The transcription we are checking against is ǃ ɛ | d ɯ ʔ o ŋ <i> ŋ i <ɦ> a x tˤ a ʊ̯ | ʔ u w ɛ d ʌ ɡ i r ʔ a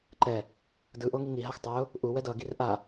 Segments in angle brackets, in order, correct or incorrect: correct, correct

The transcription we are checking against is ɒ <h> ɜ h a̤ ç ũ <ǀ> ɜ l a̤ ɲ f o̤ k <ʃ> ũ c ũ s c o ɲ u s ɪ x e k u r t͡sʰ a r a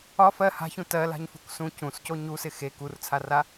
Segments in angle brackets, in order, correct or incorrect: incorrect: f, incorrect: t, incorrect: s

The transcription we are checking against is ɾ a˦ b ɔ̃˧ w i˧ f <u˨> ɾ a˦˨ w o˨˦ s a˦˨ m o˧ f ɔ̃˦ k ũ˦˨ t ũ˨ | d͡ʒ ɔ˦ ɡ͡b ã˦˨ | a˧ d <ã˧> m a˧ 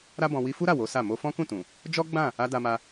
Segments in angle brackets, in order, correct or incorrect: incorrect: u˦, incorrect: a˧

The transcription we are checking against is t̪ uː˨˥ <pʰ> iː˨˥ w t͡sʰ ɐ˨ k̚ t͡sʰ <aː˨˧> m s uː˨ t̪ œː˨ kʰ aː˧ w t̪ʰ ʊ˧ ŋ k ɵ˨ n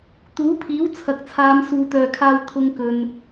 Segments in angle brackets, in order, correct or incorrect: correct, correct

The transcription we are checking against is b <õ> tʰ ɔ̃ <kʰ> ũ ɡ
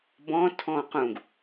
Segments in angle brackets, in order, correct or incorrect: incorrect: ɔ̃, incorrect: q

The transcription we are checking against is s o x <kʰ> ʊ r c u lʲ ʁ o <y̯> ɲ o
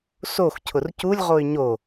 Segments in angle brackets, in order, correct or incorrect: incorrect: cʰ, correct

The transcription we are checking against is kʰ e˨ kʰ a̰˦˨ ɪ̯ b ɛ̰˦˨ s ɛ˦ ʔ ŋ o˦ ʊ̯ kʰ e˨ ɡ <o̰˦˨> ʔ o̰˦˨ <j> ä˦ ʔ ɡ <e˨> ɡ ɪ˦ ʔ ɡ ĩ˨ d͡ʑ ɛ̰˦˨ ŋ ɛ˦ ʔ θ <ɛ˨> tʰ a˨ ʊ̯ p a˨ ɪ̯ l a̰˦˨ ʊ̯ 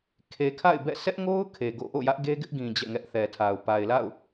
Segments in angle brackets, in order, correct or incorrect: correct, correct, incorrect: e˦, correct

